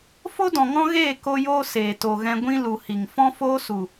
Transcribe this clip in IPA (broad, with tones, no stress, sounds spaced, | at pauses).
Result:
f o˦ d ɔ̃˨ ŋ ɔ̃˦ ɣ eː˦˨ k o˦ j oː˦ s eː˨ t o˨ ɣ ɛ̃˧ ɡʷ ĩ˦ l u˨ h i˨ ŋ f ɔ̃˦ f oː˦ s u˨